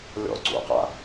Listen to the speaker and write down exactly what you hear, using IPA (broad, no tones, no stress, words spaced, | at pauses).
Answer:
lʲɔ̰ ǀṵqa̰